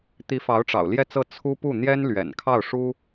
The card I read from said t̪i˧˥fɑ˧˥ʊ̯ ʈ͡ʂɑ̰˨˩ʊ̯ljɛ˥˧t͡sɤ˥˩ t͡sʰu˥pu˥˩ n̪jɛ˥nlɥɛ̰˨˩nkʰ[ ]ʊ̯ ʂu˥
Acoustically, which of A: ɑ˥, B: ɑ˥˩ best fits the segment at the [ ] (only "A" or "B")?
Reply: B